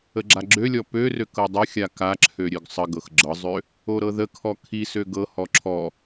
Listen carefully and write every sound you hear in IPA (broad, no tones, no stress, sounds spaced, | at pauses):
ə ɡ͡ǁ a ɡ͡ǁ ø lʲ ɔ p ø r ø k ɤ dˤ ə xʲ a k a ǁʰ ø ɾʲ ø ɡ sˤ ə ɡ ɤ x ɡ͡ǁ ɤ zˤ ø | o ɾ ɤ ð ə kʰ ɔ kʰ i s ø ɡ ɤ h ɔ ǁʰ ɔ